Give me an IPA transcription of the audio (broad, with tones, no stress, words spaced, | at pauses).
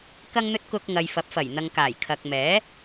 kɐ˧ŋn̪ɵ˧t̚ kʊ˧k̚ŋɐ˨jfɐ˨˥p̚fɐ˨˩j n̪ɐ˨ŋkaː˨˩j kʰɐ˨k̚mɛː˨˥